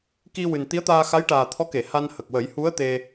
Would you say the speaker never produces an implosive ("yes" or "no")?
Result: yes